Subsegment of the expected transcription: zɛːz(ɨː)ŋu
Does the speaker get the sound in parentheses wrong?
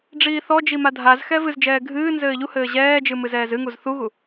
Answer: yes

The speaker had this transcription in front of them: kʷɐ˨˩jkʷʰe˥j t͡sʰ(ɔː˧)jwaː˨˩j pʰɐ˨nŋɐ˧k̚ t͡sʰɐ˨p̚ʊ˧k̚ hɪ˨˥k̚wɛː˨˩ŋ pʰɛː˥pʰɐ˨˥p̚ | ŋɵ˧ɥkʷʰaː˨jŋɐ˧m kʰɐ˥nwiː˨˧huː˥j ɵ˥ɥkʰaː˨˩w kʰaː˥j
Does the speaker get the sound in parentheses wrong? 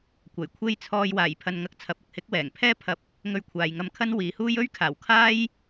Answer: no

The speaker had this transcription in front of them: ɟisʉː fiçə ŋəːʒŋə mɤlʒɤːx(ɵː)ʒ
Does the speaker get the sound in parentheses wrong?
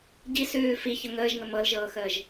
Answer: yes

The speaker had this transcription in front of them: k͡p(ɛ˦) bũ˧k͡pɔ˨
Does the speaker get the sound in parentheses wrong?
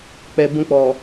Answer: yes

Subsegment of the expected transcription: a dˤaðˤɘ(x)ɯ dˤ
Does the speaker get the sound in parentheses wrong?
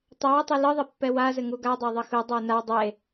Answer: no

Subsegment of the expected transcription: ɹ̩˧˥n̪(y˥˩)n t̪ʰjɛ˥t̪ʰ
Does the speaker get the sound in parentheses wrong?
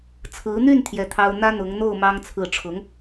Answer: no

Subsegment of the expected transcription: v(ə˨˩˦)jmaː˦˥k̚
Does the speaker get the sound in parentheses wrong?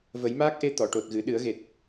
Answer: no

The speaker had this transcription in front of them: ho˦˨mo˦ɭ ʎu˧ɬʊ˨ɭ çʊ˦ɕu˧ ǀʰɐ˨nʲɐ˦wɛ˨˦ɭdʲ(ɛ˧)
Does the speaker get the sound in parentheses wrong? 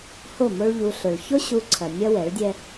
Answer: yes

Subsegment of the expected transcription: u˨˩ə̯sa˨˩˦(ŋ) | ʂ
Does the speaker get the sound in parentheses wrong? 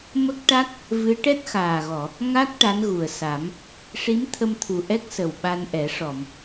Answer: yes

